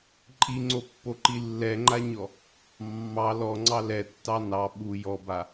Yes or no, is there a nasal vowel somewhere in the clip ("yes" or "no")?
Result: no